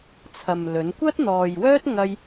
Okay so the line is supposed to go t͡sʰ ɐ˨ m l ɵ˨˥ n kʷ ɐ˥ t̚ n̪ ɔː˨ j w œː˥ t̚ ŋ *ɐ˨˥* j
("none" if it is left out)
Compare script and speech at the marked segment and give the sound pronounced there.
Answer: ɐ˥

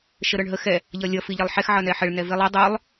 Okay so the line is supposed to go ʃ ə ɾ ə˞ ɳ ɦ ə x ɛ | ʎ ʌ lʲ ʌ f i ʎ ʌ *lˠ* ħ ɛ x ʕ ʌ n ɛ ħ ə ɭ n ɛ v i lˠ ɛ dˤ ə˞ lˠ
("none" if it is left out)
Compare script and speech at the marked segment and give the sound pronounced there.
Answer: lˠ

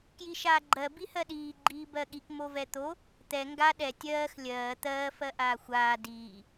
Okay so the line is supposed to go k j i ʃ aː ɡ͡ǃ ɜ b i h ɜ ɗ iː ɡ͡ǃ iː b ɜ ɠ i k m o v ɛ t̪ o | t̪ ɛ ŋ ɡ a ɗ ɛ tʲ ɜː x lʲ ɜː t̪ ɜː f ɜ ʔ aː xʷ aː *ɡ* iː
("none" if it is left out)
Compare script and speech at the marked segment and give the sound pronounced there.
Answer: d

